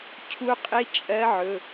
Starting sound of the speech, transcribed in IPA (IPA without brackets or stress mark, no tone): cʰ